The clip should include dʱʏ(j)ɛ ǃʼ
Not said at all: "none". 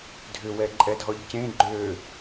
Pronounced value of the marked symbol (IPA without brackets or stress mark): w